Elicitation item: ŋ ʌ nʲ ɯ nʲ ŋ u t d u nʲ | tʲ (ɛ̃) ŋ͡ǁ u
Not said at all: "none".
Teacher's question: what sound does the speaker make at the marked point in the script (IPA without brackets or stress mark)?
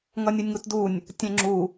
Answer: ɛ̃